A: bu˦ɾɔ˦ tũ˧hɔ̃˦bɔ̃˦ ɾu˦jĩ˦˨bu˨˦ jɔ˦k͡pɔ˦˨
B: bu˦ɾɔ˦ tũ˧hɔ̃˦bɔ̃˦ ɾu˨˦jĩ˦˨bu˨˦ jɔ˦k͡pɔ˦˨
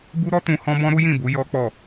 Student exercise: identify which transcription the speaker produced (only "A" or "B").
A